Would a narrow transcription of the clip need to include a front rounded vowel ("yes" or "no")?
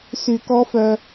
yes